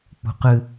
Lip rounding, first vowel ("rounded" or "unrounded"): rounded